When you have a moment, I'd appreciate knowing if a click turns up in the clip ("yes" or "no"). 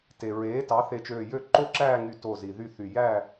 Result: yes